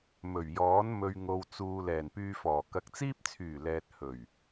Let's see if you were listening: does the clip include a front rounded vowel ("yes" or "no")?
yes